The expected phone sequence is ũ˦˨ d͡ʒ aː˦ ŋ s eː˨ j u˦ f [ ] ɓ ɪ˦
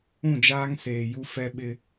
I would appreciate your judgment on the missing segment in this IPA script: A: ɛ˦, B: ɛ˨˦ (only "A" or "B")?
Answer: A